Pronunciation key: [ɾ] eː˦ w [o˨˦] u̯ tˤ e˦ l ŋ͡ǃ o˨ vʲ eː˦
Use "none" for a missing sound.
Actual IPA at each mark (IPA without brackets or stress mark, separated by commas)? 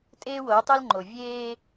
tʼ, o˨˦